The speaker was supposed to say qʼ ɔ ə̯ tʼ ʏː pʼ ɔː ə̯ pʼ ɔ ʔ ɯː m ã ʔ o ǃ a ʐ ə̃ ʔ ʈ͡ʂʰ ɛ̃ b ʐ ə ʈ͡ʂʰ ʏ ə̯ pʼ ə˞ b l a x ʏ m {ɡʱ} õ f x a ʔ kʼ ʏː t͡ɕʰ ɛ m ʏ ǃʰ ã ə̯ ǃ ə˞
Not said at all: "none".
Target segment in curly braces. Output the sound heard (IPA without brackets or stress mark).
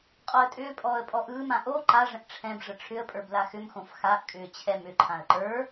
x